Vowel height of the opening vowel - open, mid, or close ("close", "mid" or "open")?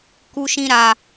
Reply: close